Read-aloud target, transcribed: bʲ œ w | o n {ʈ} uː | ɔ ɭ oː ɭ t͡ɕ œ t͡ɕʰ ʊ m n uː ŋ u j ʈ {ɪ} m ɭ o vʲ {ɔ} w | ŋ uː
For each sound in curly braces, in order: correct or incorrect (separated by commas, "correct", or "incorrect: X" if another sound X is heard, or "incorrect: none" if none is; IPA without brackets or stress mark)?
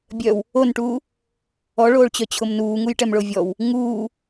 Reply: correct, incorrect: ɛ, correct